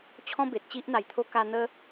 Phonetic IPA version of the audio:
t͡ɕʰɔ̃˦be˨t̚ t͡ɕi˦ʔn̪a˨˩jt̪ʰo˦ ka˧n̪ə˦

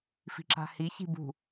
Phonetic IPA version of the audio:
fi̤ǁa̤hi çi̤bṳ

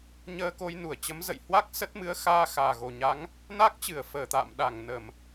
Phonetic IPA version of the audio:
ɲəː˧ko˧jnu˧˩ə̯t͡ɕə˨˦m zə̰˧˨j hwa˦˥k̚ sə˦˥t̚mɨ˨˦ə̯ xaː˧xaː˨˩ɣo˨˩ ɲa˨˦ŋ | na˦˥k̚t͡ɕɨ˧˩ə̯ fəː˧˩t̪a̰ː˧˨m ɗa˧˩ŋnə˧˩˨m

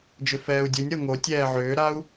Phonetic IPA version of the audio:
d͡ʒʏfɛːu̯dʲunʲ ɾɤŋo tʲɛːʕʏːɾau̯

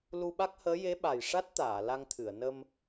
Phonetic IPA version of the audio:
lu˧ɓa˦˥k̚həː˧˥ je˧˥ɓa˨˩j ʂa˦˥t̚t̪aː˨˩˨ la˧ŋt̪ʰɨ˨˩˨ə̯ nə˧m

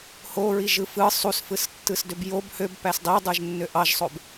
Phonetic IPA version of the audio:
hoɹiʒɯ fɯ sˤusfɯstːɯsdøb job høbpæs dˤidˤɯʒnːø ʔɑʒsˤob

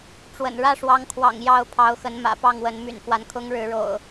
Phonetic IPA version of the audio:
ʈ͡ʂwə̰˨˩n ɻä˥˨ʂwɑ˨˦ŋkʰwɑ̰˨˩ŋ jɑ˥˨ʊ̯ pʰɑ˨˦ʊ̯xə˨˦n mä̰˨˩pɑ˥˨ŋwə˨˦n my̰˨˩nfwa˦nkʰʊ˦ŋ ɻɻ̩˨˦ɻo̰˨˩ʊ̯

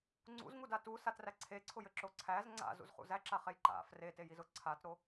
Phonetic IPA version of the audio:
ŋ͡ǀṵzŋuda tusatræ ǀʰeǀʰʊjɘǁo ǀʰæz ŋ͡ǀa̰zṵzχṵ zæǁaχej ǃa̰ fretejizʊ ǀʰatɾo

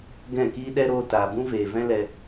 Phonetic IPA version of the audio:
ɡɛ̃˦˨kiː˦ ɗɛ˦ɾoː˧ taː˨ bũ˦veː˨vɛ̃˦ lɛ˧

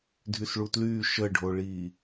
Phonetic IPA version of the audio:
dʱysɭutlyː ʃəɖʱoɭiː

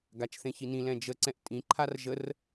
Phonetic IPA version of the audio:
ɡat͡ʃθẽçinĩ lɛ̃d͡ʒəǀɛ̃ʔ tʼĩǃʰar ʒər

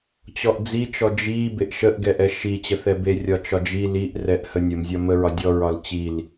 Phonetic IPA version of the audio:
t͡ɕɔʔd͡zit͡ʃɔ d͡ʒi beʔʃəʔɡɛ ʔɛʃit͡ɕə θɛbe rʲɒt͡ʃɒd͡ʒi liʔ rɛʔhənʲəmzʲɒ məɹɒdʲɔɹɒl t͡ɕil

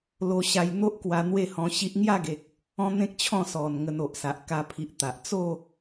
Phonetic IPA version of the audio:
lo˧ɕa˧jn̪o˦ʔkwa˧ n̪we˥˧hɔ̃˧ɕi˦ʔ ŋja˥˧ɡe˨k̚ | ɔ̃˦n̪ẽ˦k̚t͡ɕʰɔ̃˥˧sɔ˨˩n ŋə˧no˨ʔsa˨ʔ ka˧pʰi˨ʔ t̪a˨ʔ t͡so˥˧

